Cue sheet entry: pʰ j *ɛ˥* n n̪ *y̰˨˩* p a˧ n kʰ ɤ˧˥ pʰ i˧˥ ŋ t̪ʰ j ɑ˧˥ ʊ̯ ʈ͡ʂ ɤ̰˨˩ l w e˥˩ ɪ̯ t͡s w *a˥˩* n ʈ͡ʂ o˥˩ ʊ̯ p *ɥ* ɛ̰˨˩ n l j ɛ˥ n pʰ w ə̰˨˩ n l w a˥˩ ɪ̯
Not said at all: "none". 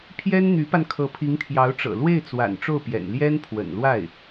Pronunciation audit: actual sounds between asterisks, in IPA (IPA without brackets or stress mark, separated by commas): ɛ˥, y˧˥, a̰˨˩, j